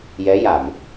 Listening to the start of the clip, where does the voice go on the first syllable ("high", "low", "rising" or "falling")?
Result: rising